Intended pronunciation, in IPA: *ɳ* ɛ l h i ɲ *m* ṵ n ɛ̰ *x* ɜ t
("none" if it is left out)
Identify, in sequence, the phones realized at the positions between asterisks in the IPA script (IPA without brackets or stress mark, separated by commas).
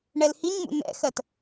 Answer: ɳ, m, x